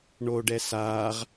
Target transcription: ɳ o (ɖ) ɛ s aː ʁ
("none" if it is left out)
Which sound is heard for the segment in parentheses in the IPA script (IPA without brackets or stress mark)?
ɖ